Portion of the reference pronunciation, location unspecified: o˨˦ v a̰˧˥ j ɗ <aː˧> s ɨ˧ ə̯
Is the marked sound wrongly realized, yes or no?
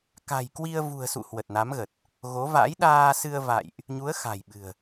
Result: no